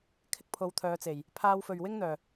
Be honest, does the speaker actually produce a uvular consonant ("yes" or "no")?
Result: no